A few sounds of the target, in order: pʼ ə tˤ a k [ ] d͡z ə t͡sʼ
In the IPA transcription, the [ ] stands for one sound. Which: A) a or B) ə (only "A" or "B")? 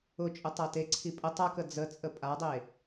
B